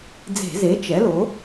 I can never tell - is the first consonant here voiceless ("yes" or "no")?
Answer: no